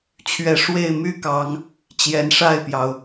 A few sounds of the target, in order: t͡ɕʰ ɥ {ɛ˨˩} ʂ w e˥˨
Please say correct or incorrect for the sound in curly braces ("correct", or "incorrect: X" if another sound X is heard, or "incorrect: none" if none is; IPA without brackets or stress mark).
incorrect: ɛ˨˦